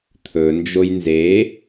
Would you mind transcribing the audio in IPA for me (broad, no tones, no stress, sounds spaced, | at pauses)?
t̪ʰ ɵ n d͡ʒ o j n z e